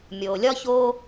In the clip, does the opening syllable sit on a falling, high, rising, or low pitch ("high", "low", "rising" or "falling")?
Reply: low